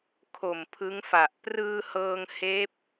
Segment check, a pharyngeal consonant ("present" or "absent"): absent